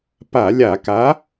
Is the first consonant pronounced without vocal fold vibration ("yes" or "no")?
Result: yes